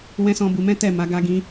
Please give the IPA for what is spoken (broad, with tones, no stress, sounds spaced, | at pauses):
w ɛ̃˦ s ɔ̃˦ b u˧ m ɛ̃˦ t ɛ˦˨ m a˨˦ ɡ a˧ ɡ ĩ˧